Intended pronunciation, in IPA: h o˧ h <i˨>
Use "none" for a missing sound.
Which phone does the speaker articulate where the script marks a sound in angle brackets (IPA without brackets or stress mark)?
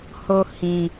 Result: ĩ˨